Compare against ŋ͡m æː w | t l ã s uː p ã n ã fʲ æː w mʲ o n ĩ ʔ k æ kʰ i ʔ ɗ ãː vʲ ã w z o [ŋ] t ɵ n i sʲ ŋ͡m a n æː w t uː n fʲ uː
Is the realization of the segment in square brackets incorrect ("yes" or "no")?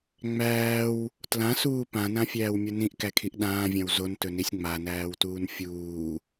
yes